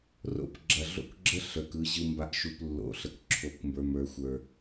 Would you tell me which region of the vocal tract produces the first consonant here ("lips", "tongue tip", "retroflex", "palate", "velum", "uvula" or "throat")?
tongue tip